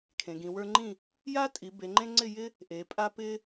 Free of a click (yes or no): no